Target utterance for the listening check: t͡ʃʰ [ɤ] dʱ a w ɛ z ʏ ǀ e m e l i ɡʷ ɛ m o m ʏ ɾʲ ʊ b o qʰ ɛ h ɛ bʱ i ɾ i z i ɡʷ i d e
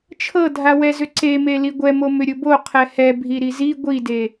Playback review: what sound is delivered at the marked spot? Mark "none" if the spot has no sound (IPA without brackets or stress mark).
ɤ